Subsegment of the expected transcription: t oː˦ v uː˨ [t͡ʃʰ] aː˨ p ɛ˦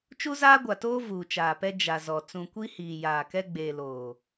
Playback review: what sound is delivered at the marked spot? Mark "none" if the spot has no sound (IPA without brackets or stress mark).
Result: t͡ʃ